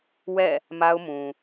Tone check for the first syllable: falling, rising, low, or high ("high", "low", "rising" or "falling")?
falling